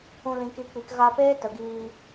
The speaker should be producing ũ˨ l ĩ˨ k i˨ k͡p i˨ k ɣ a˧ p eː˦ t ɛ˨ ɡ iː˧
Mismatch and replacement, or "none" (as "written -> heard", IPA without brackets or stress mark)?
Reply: ɛ˨ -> ə˨